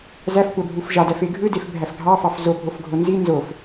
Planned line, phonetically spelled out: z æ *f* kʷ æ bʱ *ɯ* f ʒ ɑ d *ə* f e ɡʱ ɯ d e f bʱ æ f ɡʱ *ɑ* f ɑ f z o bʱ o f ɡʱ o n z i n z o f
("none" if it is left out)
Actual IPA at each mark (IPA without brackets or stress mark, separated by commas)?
f, u, æ, ɑ